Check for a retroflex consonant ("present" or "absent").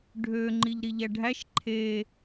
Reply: present